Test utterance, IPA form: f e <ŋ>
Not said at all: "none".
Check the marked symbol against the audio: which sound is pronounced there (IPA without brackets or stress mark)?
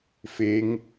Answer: ŋ